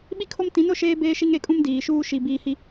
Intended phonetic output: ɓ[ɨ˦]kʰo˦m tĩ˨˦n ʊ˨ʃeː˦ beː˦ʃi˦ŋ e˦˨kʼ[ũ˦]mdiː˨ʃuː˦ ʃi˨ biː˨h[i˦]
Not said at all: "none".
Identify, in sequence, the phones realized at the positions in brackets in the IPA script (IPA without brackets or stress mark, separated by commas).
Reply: i˦, ũ˦, i˨